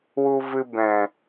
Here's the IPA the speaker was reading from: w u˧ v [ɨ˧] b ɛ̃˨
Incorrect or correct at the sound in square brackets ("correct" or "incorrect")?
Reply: correct